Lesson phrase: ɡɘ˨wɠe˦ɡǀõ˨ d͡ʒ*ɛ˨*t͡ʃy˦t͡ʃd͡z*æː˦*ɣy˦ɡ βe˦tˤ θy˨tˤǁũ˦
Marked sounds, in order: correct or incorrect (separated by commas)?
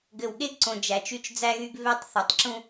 incorrect, incorrect